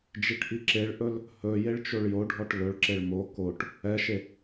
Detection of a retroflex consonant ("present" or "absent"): present